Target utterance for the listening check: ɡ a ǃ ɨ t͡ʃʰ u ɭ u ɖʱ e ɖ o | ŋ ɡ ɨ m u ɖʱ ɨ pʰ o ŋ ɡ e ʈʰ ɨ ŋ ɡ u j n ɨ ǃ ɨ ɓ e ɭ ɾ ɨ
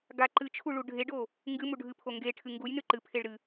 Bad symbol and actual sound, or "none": ɓ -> pʰ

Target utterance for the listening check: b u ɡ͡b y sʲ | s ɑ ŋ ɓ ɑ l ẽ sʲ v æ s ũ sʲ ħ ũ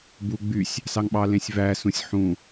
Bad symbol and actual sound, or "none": none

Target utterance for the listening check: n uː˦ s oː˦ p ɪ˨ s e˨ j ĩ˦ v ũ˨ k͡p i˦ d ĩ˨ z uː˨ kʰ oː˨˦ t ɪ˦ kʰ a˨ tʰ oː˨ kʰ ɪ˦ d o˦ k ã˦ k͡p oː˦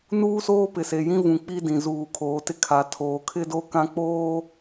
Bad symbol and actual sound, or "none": none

